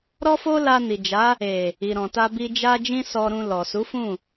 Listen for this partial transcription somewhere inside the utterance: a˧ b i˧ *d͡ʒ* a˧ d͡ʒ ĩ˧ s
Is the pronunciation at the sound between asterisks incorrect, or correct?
correct